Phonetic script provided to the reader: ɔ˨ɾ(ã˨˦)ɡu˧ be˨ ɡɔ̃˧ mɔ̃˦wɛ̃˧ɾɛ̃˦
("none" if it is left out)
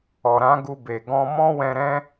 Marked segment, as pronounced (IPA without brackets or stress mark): ã˨˦